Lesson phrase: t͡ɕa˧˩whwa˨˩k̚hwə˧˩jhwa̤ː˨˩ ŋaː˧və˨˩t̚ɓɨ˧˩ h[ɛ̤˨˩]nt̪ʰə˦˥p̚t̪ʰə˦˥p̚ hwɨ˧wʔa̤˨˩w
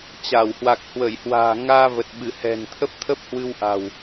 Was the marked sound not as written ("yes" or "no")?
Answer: no